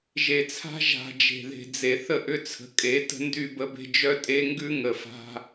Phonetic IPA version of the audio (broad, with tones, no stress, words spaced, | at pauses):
ʒe˨t͡sʰa̤˦ ʒa̤˨ d͡ʒe̤˨ðe̤˨d͡ze˨ θə˦ʔʏ˦t͡sʰə̤˨ kʼe˨˦ tə̤˦ndy˦˨bə˦be̤˦ d͡ʒœ˦tʼe˦ŋɡʉ˦ ŋə˨fa̤˦